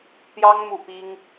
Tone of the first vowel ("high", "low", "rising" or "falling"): high